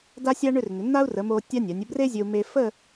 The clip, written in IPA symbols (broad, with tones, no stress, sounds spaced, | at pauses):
d a˥ sʲ a˥ ɳ ʏ˥˧ r n̪ ʏ˩˧ n̪ a˥ u̯ r ə˩˧ m o˧ tʲ a˥ nʲ a˩˧ nʲ ə˥˧ b r e˥ zʲ ɵ˧ u̯ m e˧ f ə˥˧